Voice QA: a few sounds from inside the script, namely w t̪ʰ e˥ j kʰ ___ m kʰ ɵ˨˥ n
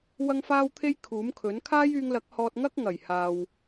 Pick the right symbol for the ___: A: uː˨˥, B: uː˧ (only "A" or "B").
A